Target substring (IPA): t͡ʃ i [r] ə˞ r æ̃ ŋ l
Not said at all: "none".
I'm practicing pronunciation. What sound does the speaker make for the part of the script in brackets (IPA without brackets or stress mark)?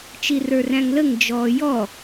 r